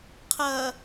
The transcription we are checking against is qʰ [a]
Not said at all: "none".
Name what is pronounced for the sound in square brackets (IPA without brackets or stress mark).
ɐ